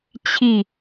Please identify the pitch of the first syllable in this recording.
falling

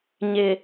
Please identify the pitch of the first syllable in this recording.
low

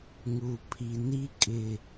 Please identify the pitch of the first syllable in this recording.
low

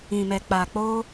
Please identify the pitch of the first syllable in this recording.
low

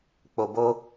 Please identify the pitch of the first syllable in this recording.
low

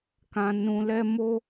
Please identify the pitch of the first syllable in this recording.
low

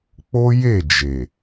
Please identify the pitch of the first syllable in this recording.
high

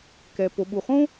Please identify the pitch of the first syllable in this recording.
low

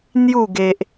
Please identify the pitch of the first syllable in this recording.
falling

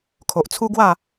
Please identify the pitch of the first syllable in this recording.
low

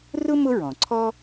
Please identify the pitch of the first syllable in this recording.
high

